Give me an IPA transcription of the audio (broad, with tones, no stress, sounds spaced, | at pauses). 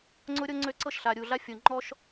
ŋ͡ǀ ʊ˦ ɾʲ ɤ˦ ŋ͡ǀ ø˦ ǀ ɤ˦ ʃ ɬ a˨ ɾʲ u˨ ɮ a˦ fʲ o˨ ŋ͡ǃ ɔ˦ ʃ